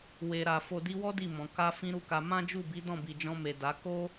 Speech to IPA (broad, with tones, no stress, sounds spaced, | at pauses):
w e˨ ɾ a˨ f o˨ d i˧ w ɔ˦ d i˦˨ m ɔ̃˨ k a˧ f ĩ˦ ɾ u˦˨ k a˧ m ã˦ d͡ʒ u˦˨ b i˨˦ d ɔ̃˦˨ b i˨ d͡ʒ ɔ̃˧ m e˨ d a˨˦ k o˦